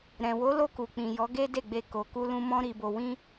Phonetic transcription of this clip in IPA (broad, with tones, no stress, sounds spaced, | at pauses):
ɾ ɛ̃˨ w o˨˦ l o˧ k u˨ k͡p ĩ˨ j ɔ˨˦ ɡ e˦ d e˦˨ ɡ͡b e˧ k o˨ k u˧ l ũ˧ m ɔ̃˦ ɾ i˧ b o˧ w ĩ˦